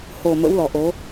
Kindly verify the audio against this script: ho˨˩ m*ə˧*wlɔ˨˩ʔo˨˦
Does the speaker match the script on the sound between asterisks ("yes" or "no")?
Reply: no